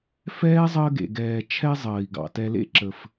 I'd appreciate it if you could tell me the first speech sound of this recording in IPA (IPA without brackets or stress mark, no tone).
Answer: f